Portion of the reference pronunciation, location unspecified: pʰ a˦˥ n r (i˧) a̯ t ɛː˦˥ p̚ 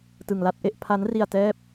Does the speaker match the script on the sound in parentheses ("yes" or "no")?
yes